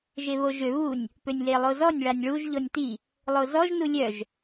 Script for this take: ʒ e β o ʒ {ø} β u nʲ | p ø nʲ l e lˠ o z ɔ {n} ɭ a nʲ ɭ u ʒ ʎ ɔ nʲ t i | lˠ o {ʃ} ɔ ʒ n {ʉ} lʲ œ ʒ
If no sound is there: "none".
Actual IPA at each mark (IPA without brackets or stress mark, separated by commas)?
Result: ø, nʲ, z, u